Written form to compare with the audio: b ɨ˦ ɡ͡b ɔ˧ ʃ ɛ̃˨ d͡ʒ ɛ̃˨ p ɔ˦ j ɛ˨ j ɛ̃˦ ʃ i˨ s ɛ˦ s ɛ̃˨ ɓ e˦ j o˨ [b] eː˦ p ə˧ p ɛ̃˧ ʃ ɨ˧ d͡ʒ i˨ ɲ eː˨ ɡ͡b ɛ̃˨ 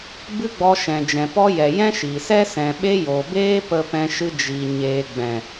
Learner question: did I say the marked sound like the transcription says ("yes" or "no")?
yes